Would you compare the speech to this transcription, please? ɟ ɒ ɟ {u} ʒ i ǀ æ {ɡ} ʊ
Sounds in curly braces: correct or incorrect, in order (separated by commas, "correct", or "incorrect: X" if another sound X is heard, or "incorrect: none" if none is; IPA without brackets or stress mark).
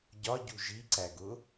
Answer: correct, correct